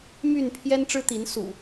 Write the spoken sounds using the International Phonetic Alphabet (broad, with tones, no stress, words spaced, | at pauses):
my˥˨n pʰjɛ˦nʈ͡ʂɻ̩˦t̪i˨˦n sṵ˨˩